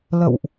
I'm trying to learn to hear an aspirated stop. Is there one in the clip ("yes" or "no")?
no